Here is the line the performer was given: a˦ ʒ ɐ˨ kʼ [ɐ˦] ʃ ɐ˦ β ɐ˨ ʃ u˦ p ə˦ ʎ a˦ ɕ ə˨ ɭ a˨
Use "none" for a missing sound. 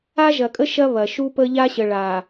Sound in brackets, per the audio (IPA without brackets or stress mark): ə˦